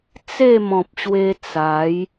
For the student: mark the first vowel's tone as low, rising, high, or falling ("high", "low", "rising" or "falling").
falling